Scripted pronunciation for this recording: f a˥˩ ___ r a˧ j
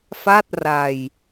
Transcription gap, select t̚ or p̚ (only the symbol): t̚